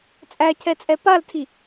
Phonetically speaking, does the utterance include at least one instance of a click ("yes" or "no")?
no